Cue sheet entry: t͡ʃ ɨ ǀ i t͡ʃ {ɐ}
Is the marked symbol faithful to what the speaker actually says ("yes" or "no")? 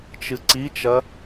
yes